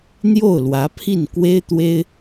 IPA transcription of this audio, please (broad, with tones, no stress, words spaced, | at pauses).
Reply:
n̪jo˥˩ʊ̯lwä˧˥pʰi˥˩nkwe˥ɪ̯ t̪we˥ɪ̯